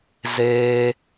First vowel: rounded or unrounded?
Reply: unrounded